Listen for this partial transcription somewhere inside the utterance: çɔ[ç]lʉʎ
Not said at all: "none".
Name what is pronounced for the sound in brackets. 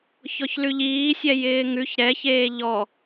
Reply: ç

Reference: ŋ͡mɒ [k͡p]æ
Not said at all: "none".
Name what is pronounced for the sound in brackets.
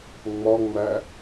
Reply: ŋ͡m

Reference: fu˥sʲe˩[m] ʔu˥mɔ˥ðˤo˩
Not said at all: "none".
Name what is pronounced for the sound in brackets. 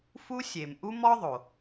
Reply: m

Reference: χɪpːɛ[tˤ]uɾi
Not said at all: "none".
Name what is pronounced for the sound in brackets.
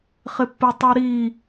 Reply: tˤ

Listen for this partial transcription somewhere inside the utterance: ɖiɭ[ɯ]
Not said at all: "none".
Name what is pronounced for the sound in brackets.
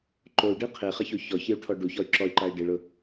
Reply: ʊ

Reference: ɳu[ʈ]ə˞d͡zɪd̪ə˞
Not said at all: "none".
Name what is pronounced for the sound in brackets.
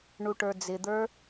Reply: ʈ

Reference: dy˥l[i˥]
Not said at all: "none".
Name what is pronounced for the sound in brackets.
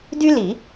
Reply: i˨˩˦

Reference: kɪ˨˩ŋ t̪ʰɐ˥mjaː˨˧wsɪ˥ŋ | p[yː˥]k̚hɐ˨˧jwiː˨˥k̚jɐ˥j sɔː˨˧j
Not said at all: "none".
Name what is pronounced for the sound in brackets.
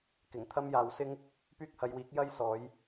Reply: yː˥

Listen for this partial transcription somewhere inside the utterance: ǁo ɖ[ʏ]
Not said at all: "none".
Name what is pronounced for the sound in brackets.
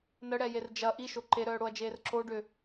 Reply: ʏ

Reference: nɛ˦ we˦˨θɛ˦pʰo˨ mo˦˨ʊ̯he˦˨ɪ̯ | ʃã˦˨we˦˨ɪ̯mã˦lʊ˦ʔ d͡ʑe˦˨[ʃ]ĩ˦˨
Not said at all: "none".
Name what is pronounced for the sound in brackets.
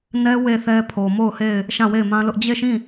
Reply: ʃ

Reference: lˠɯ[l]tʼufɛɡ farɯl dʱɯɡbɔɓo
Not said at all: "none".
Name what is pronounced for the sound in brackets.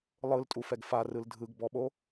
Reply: l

